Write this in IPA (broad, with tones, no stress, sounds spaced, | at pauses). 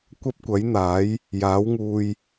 kʷ ɐ˥ p̚ kʷ ɐ˨˥ j n̪ aː˨˥ j | j aː˨˥ w ŋ uː˧ j